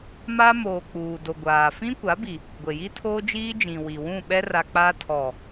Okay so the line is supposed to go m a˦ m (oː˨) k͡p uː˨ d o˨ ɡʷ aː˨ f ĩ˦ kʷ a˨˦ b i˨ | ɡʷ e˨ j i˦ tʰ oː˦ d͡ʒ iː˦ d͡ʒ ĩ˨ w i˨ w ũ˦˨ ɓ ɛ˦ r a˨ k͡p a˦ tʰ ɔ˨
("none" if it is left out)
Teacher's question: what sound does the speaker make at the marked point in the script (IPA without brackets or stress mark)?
oː˨